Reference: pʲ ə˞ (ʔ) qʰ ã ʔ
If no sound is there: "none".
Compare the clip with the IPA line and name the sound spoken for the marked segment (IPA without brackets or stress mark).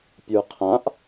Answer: none